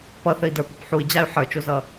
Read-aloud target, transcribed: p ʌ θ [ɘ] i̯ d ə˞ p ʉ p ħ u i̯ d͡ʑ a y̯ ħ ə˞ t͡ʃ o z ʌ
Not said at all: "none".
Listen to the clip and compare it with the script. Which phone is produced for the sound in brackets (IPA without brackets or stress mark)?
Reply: ɘ